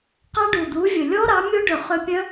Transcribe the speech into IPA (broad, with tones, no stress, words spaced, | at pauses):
qɑ˦˥ɖu˨˩d̪u˨˥vʲɵ˨˩ lʲɔ˦˥ɾɑ˨˥mʲo˦˥ɖɵ˨˩ χø˦˥ pʲœ̃˦˥